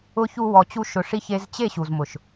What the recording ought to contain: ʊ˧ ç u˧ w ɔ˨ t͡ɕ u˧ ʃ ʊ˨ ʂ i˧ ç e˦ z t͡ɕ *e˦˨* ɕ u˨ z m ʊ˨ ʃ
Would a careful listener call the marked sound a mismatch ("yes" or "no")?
no